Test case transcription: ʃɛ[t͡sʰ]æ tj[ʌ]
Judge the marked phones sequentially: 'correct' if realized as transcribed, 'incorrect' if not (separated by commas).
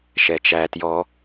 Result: incorrect, incorrect